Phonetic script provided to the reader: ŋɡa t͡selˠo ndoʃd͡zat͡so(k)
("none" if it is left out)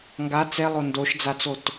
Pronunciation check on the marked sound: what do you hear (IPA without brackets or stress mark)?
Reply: t